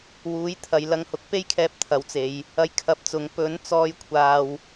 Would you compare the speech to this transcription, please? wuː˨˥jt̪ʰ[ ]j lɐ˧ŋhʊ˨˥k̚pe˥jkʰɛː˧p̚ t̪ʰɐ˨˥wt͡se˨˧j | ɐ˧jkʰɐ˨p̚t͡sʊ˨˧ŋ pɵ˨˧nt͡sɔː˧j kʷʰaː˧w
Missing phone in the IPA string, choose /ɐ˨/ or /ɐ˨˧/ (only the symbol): ɐ˨